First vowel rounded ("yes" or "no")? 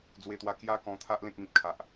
no